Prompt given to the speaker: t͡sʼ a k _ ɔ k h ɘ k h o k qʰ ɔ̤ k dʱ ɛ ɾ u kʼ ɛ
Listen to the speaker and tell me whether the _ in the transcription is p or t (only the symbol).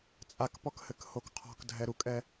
p